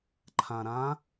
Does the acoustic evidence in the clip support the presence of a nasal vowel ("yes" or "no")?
yes